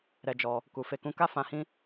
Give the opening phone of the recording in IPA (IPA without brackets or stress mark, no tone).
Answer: ɾ